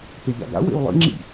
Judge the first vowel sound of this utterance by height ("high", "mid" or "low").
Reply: mid